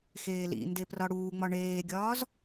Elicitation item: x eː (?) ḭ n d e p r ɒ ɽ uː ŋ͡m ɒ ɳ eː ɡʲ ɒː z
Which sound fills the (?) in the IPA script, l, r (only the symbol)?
l